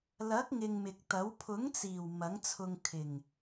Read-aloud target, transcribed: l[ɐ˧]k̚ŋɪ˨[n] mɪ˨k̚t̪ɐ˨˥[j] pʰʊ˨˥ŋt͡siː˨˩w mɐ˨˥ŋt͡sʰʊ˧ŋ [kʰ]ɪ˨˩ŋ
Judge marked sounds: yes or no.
no, no, no, yes

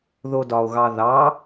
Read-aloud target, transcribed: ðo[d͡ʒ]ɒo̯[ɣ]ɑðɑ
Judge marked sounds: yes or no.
no, yes

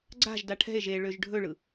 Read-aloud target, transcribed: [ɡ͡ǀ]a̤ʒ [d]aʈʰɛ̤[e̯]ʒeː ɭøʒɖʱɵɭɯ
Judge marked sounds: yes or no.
yes, yes, yes

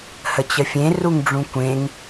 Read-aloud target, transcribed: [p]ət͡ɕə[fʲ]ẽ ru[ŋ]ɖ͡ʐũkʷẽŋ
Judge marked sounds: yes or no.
no, yes, yes

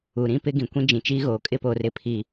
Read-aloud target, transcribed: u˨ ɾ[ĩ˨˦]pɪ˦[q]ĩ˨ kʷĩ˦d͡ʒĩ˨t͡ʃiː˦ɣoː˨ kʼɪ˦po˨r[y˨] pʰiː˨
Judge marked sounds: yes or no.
no, no, no

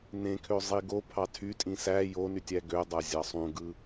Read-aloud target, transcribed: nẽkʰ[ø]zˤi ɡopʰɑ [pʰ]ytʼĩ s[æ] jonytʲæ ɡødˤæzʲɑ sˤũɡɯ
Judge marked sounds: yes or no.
yes, no, yes

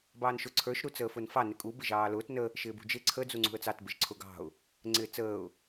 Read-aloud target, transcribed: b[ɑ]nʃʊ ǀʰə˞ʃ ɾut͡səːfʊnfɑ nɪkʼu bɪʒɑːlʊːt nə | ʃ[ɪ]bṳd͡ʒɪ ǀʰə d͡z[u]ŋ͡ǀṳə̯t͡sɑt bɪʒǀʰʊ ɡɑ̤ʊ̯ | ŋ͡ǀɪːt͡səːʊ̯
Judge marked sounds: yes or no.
no, no, yes

